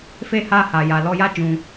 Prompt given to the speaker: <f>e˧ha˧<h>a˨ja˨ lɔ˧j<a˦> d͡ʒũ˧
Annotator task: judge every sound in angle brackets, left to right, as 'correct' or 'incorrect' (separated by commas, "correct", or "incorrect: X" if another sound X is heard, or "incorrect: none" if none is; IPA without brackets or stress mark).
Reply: correct, correct, correct